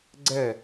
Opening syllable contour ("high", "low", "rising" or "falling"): falling